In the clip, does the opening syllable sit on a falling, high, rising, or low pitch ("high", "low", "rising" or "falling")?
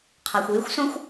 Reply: low